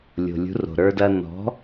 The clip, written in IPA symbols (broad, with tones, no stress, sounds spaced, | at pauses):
lʲ o̤˩ lʲ ṳ˩˥ r o̤˩ ɾ ə˞˧ d ɐː˧ n ɔ̤˩˥